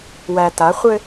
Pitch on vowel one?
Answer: low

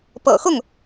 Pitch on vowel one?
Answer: low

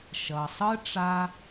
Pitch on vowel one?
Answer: low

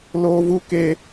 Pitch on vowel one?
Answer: high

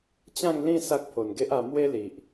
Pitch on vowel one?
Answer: falling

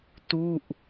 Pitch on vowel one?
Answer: falling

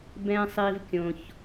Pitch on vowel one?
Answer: low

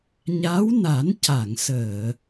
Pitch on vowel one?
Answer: rising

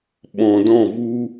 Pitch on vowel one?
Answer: low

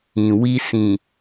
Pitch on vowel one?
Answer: low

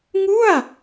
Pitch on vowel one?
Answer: falling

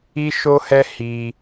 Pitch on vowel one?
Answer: high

